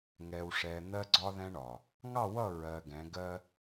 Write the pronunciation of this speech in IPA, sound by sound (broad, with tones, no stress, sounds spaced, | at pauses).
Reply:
ŋ ɛ˨ w ʂ ɛ˨ n̪ ɜ˦ ɡ͡ǀ ɒ˦ ð ɛ̃˦ ɳ ɒ˨ | ŋ ɑ˦˨ w ʌ˦˨ ɹ ɜ˨ ɡ ɛ̃˨˦ ɡ ɜ˦